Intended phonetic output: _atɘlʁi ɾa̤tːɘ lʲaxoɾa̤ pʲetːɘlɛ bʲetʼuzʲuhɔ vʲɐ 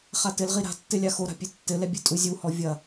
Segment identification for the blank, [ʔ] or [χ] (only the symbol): χ